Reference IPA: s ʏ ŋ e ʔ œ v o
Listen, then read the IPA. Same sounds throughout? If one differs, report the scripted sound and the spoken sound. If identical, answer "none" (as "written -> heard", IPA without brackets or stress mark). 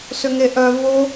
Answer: none